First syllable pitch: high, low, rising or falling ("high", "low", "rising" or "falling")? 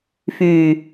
low